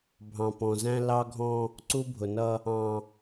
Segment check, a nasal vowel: present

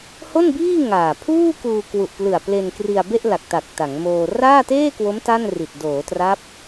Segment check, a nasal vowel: absent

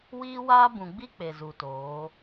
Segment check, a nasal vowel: present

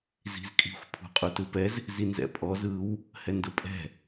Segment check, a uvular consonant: present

